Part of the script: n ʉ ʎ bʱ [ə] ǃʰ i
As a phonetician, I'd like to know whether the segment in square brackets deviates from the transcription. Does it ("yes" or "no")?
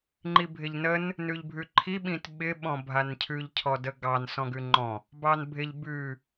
yes